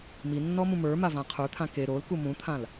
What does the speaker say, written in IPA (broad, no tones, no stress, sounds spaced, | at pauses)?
m i nː ɔ m ũ m ə˞ m a v ã qʰ ə˞ t̪ʰ ã k e ɾ o l k u m ũ t̪ʰ ã l